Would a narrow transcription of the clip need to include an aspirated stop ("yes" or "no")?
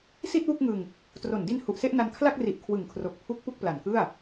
yes